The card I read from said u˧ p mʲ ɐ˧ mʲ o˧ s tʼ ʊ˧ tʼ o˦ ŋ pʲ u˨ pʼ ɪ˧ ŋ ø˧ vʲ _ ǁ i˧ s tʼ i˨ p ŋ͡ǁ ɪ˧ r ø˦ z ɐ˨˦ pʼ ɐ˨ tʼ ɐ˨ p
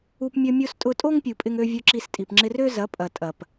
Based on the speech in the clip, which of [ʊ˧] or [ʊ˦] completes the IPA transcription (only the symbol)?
ʊ˧